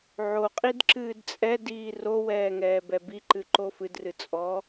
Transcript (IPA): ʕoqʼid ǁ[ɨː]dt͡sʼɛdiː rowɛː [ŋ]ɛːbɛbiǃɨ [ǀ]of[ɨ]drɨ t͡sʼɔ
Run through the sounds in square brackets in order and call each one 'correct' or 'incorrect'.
correct, correct, incorrect: ǃ, correct

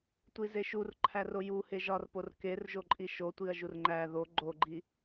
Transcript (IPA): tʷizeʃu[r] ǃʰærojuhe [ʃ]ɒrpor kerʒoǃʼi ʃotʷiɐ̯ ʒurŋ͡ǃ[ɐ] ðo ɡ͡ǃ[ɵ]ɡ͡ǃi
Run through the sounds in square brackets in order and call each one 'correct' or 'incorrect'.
correct, incorrect: ʒ, incorrect: æ, incorrect: o

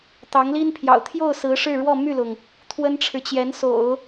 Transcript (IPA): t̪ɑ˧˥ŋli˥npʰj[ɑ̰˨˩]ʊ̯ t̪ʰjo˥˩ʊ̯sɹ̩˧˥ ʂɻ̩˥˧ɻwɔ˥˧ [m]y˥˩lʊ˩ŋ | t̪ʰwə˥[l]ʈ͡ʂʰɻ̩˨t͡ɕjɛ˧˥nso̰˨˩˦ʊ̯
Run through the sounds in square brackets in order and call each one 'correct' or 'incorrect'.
correct, correct, incorrect: n

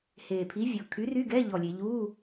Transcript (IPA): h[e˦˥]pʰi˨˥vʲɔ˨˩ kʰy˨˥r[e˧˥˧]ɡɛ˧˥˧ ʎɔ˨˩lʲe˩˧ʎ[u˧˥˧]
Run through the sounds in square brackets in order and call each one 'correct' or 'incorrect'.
incorrect: e˨˩, incorrect: y˧˥˧, correct

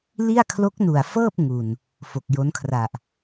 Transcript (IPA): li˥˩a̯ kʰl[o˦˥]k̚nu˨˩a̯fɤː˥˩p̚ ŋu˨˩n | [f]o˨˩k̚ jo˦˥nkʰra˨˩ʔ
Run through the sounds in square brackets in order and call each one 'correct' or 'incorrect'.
correct, correct

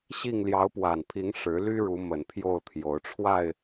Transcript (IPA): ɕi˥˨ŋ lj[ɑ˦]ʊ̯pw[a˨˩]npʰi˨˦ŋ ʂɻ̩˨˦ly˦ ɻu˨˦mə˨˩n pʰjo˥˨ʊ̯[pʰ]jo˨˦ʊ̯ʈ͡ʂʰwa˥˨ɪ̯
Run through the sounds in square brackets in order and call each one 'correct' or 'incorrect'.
incorrect: ɑ˨˦, correct, incorrect: t̪ʰ

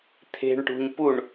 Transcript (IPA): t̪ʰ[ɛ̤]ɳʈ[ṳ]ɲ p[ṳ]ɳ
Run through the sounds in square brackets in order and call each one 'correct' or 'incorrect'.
incorrect: e̤, correct, incorrect: u

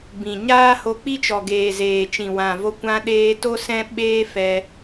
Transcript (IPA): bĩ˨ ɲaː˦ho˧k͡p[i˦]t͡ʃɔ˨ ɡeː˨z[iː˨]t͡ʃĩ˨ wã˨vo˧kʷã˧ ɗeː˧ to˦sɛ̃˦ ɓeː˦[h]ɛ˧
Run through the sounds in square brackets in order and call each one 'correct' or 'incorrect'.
correct, incorrect: eː˨, incorrect: f

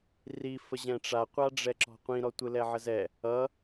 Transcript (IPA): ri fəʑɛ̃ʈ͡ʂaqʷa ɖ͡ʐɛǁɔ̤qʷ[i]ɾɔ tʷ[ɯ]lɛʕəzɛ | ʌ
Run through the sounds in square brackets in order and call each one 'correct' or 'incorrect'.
incorrect: ĩ, correct

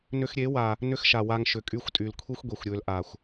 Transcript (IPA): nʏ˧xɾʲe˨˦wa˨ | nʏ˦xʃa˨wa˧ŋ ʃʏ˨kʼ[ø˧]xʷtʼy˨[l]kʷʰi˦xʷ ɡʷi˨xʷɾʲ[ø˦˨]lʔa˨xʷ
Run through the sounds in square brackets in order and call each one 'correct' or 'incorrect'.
incorrect: y˧, correct, incorrect: ø˧

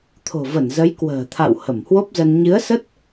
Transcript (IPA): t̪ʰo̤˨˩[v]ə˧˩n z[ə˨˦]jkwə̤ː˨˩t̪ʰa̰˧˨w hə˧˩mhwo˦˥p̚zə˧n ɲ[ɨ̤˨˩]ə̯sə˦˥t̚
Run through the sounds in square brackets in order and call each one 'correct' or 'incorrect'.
correct, correct, incorrect: ɨ˨˦

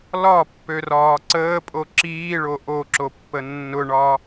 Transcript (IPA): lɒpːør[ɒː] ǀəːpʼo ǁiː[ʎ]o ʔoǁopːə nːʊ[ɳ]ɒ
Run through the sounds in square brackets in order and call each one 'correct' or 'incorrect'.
correct, incorrect: ɭ, correct

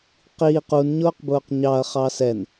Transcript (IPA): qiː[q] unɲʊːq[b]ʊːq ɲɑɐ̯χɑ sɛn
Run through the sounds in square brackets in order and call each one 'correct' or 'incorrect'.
correct, correct

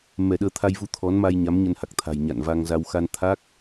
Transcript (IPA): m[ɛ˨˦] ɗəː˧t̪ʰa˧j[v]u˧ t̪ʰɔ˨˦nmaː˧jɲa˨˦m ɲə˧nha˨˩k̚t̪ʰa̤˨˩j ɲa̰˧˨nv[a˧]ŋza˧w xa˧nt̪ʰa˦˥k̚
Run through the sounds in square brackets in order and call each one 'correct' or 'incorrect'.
incorrect: ɛ˧˩, correct, correct

